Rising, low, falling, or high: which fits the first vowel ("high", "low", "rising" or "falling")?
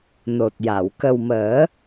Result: low